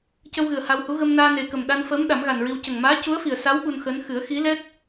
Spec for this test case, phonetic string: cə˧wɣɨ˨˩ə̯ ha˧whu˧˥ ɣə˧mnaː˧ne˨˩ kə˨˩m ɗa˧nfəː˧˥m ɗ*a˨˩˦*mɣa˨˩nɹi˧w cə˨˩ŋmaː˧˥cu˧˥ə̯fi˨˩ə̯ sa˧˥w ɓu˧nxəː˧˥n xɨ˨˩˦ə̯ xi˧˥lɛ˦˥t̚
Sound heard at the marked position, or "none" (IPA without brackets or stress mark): a˨˩˦